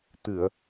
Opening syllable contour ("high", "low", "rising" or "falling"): low